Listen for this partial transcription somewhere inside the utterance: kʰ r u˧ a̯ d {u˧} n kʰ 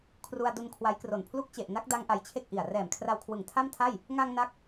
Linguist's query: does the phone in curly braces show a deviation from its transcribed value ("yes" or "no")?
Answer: no